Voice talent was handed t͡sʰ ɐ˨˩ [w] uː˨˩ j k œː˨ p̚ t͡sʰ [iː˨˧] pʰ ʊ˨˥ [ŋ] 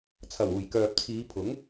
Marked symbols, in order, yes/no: yes, yes, yes

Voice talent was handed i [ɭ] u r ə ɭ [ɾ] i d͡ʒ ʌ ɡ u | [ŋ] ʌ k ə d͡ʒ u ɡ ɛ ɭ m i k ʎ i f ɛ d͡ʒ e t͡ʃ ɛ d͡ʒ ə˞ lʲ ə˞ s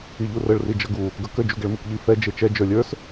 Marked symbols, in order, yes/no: no, no, no

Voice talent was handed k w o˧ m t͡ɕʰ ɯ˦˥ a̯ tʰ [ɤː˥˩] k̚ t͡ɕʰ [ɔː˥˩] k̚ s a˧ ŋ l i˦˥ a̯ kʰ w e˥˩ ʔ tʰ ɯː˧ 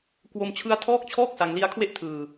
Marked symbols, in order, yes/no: no, yes

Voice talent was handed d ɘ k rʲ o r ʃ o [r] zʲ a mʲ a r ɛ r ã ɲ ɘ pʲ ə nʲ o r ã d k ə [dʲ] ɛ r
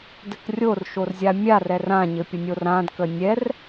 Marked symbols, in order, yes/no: yes, no

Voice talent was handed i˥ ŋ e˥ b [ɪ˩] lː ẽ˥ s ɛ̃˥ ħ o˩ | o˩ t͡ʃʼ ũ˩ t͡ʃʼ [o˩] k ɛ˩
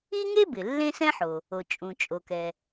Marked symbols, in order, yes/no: yes, yes

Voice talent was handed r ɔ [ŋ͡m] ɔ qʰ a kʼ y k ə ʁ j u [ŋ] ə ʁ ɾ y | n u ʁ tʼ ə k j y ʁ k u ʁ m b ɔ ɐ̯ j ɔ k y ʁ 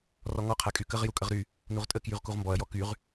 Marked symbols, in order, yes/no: no, no

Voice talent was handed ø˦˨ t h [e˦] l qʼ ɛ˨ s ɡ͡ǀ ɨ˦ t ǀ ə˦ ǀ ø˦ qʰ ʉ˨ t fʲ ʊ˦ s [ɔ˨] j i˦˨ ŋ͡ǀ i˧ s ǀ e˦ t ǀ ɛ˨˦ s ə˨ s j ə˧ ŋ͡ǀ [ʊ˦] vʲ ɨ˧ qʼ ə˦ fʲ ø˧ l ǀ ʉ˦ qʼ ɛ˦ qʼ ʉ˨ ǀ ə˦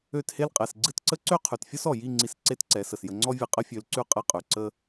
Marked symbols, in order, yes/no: yes, yes, no

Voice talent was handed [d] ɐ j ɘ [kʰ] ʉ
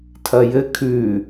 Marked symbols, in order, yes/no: no, yes

